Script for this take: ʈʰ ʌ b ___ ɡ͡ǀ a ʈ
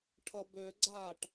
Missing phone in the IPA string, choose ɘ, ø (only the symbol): ø